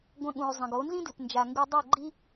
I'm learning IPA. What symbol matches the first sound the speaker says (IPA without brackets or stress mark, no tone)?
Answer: ɡʷ